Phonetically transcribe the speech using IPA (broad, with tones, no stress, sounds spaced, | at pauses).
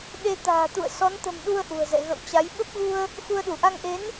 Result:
ɗ e˧ t̪ a̤ː˨˩ t̪ ṵ˧˨ ə̯ s ɔ˨˦ n t̪ ə̤˨˩ m ɗ u˧ ə̯ ʔ ṳ˨˩ ə̯ z ɛ̰˧˨ ɣ ə̰˧˨ w t͡ɕ a˨˦ j ɓ ə˦˥ p̚ ɣ u˧ ə̯ | x u˧ ə̯ ɗ u˧˩ ʔ a˧ ŋ ʔ e˨˦ n